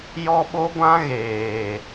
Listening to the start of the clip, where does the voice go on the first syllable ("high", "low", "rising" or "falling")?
high